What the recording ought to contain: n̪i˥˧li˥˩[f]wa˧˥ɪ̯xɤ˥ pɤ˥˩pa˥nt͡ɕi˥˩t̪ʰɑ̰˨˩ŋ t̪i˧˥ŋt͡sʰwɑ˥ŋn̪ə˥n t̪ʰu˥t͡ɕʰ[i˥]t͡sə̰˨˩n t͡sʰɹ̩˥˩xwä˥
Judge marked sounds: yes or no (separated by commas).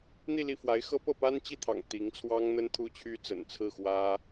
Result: yes, no